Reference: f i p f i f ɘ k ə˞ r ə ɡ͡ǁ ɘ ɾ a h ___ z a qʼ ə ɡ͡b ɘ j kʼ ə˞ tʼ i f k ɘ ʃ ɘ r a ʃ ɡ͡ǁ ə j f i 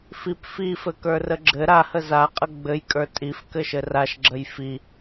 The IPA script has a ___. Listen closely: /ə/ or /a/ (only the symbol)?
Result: ə